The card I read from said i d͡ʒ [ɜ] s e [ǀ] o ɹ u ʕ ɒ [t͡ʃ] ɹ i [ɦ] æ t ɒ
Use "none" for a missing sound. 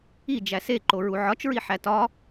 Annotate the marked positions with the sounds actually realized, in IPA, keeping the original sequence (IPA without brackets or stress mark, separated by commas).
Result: æ, ǃ, t͡ʃ, ħ